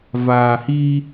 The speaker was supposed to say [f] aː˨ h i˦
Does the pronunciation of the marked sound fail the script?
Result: yes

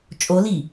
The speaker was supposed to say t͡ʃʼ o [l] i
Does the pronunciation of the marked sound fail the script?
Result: no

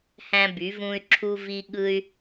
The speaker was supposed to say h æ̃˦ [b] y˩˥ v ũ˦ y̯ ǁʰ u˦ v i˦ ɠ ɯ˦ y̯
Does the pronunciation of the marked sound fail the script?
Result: no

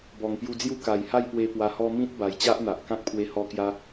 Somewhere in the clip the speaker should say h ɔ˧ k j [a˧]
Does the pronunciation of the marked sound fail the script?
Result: no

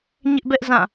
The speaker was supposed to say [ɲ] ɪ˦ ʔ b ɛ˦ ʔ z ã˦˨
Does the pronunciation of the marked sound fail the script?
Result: no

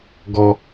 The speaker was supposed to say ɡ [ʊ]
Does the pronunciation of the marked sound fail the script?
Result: yes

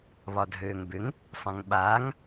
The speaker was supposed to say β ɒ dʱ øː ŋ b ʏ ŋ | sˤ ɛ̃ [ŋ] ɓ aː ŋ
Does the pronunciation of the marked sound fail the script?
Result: no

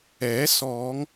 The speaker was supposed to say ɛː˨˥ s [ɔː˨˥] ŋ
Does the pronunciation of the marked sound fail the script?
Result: yes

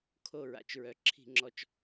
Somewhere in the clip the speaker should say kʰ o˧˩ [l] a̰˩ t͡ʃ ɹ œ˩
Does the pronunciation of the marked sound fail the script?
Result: yes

